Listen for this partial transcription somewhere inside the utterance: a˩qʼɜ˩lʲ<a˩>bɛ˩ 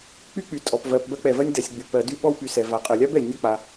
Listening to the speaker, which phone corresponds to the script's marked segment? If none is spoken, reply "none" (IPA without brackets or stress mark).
a˥